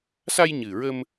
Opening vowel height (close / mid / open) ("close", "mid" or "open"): open